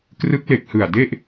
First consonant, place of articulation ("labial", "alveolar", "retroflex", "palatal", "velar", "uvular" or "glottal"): velar